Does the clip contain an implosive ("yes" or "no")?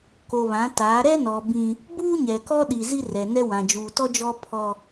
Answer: yes